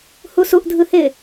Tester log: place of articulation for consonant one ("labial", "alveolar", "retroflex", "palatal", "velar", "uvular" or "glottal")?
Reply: glottal